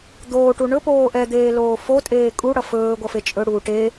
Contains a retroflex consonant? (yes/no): yes